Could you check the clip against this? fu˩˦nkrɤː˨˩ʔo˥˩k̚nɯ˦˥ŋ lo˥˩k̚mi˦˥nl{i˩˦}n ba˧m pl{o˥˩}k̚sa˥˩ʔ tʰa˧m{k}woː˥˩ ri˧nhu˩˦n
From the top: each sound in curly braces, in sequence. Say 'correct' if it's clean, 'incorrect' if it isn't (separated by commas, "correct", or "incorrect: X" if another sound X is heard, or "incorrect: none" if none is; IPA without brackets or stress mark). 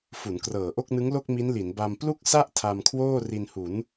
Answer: correct, incorrect: u˥˩, incorrect: kʰ